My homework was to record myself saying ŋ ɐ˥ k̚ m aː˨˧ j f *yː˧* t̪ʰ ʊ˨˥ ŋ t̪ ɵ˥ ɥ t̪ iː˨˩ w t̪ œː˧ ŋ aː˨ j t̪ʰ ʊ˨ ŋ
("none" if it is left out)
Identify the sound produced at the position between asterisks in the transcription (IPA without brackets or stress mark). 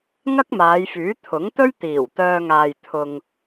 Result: yː˨˥